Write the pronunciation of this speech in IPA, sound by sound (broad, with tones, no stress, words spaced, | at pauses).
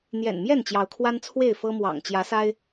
n̪jɛ̰˨˩nmjɛ˥˨n t͡ɕjɑ˨˦ʊ̯kʰwa˦nt͡sʰwe˥˨ɪ̯ fɤ˦mwɑ̰˨˩ŋ t͡ɕjä˨˦sa˦ɪ̯